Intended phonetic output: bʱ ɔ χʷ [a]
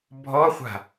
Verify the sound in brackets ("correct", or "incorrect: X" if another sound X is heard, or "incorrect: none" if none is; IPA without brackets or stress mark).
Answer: incorrect: a̤